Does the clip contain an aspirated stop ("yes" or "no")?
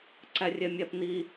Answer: no